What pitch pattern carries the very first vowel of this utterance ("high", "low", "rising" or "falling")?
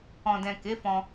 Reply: low